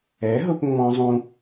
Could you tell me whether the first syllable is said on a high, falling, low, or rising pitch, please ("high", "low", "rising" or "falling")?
rising